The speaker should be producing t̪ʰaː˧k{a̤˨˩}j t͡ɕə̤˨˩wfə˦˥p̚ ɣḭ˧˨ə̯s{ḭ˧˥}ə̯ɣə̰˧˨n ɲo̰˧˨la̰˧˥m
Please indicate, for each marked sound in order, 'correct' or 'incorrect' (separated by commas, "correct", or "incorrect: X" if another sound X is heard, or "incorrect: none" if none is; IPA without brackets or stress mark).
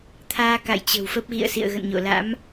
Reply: incorrect: a̰˧˨, incorrect: ḭ˧˨